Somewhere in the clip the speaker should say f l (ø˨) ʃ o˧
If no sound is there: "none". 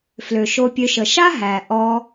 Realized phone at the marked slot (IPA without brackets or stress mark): ø˨